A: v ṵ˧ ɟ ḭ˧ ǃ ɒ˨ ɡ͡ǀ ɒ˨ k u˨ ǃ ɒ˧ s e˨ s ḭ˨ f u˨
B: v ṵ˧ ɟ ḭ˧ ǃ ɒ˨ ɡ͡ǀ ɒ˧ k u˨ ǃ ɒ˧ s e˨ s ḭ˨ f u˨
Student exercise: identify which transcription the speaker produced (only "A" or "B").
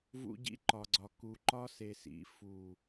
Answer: A